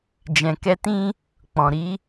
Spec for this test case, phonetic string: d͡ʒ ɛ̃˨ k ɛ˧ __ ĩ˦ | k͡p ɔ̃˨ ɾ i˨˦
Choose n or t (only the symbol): t